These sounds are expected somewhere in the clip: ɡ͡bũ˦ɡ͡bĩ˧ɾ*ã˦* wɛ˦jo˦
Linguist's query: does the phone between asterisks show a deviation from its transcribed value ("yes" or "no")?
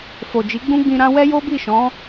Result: no